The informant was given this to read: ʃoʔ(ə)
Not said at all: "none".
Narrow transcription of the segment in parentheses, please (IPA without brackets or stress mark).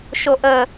ə